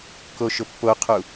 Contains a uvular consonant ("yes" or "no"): yes